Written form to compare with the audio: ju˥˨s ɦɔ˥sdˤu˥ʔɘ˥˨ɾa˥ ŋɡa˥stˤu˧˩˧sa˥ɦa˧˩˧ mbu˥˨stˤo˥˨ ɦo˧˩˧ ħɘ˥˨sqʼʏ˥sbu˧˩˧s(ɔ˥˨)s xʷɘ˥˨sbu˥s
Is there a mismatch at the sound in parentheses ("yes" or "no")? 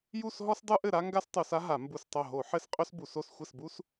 yes